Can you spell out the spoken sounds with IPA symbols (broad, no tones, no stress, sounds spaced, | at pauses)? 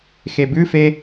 x e b ʉ f e